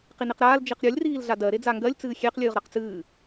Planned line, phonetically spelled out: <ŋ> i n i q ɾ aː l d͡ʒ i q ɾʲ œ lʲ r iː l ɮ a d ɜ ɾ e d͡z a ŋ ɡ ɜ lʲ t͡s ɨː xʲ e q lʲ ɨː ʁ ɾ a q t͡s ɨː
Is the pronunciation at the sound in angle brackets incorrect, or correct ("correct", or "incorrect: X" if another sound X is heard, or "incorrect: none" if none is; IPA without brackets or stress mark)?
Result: incorrect: q